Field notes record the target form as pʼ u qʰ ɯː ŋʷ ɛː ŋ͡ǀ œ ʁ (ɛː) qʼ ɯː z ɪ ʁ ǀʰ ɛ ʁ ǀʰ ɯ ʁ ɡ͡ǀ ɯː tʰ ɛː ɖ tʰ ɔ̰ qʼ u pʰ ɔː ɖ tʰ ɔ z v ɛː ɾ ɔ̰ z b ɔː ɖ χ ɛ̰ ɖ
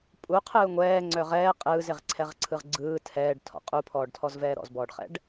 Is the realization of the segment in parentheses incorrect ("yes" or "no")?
no